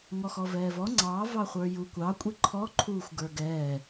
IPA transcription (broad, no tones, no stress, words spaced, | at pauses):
ŋɔxɔvɛːvɔ ŋ͡ǀɑ vɑχʷə˞jukʷɑ kʷʼiǃʰɔ ǃʰuːxʷɡə˞ɡɛː